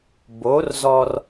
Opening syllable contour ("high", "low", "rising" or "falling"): rising